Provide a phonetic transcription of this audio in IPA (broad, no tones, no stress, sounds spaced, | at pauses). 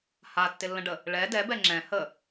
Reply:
h a tː ɪ lː ə̃ ɖ ə | ɭ ɛ d ɛ b ɛ ŋ͡ǁ ɛ̃ h ə